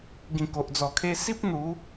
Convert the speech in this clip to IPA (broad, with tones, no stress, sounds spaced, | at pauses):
ɡ ĩ˨˩ k o˨ ʔ d͡z ɔ˨˩ kʰ e˧ s i˦ p̚ n̪ u˨˦